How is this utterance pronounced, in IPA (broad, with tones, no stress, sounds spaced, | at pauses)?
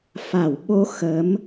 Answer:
f a˧˩ w ɓ o˧ x ə˨˦ m